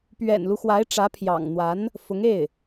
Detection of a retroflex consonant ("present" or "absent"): present